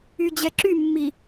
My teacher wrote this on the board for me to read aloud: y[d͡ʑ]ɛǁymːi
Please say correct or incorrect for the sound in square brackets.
correct